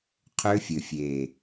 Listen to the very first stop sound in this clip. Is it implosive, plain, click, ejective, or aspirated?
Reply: aspirated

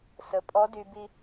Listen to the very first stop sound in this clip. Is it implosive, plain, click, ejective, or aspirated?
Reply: ejective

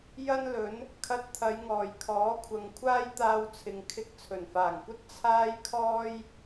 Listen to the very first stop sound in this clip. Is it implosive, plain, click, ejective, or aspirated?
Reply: aspirated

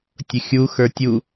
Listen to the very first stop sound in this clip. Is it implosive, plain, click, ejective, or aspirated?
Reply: plain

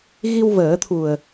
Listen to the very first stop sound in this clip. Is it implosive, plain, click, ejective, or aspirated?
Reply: aspirated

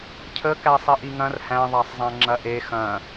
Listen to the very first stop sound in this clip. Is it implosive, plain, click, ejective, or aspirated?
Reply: aspirated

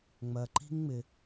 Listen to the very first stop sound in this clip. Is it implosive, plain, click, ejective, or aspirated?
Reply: click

